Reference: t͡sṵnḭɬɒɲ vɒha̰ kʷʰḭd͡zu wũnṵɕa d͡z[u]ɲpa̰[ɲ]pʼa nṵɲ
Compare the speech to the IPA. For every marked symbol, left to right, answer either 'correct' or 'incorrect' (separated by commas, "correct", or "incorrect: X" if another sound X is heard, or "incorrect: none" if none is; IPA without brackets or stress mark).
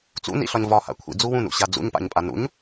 incorrect: ṵ, correct